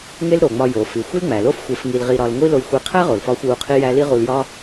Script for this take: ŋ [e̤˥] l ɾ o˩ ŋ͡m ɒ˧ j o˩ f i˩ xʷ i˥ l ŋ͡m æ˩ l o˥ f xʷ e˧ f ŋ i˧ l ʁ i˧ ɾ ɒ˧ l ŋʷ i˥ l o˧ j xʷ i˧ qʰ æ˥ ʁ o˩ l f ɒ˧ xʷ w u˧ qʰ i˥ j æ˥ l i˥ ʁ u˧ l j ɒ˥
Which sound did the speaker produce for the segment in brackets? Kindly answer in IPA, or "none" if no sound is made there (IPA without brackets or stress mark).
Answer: e˥